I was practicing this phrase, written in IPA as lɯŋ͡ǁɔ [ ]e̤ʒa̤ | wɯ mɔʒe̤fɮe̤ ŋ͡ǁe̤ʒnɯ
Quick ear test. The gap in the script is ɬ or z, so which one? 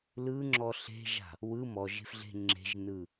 ɬ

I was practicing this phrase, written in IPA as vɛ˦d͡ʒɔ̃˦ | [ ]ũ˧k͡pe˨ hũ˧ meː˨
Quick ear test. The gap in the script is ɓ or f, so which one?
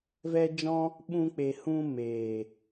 ɓ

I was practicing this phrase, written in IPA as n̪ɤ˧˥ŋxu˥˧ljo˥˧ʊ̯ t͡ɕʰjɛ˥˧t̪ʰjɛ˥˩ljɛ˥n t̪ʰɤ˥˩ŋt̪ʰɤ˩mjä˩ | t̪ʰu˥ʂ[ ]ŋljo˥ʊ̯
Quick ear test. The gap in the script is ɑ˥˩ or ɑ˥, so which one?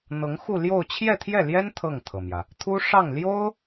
ɑ˥˩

